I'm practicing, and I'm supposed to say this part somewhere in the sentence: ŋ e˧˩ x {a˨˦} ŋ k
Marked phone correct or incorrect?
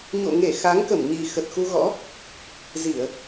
correct